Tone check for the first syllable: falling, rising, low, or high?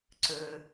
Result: low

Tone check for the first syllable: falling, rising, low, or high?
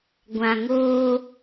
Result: low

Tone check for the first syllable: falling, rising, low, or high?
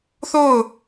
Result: falling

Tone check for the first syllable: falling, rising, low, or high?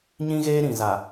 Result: high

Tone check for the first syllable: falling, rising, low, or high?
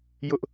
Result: high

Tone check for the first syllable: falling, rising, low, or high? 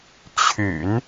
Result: low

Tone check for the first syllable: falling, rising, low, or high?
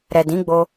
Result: low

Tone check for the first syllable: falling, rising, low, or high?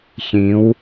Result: rising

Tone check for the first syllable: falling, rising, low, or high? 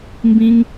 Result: high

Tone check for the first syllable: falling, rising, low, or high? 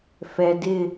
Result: low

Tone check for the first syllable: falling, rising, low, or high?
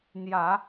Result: low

